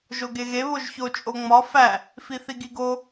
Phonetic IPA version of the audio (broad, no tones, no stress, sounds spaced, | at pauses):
ʒ o ɡ e ɣ e β o ʒ ç o t͡ʃʼ o ŋ͡m ɒ f æ | f i θ i ɡ i ɡ o